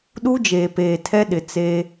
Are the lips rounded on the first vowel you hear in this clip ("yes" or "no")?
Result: yes